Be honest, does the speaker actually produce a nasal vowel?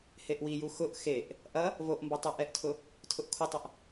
no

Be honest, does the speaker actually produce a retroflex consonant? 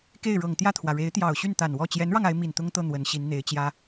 yes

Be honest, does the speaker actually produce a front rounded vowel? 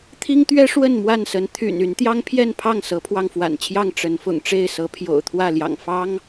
yes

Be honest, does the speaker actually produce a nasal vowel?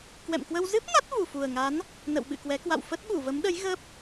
no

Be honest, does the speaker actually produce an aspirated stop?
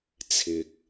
yes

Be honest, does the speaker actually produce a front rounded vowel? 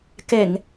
no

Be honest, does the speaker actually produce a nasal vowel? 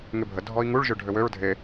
no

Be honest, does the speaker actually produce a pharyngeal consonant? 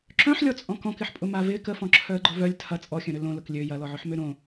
yes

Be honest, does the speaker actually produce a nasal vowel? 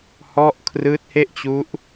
no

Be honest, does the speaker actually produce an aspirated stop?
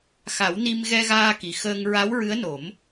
no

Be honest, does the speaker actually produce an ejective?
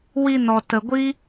no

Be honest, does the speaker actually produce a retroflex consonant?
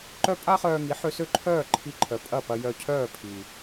no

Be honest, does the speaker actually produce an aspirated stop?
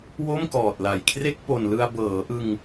yes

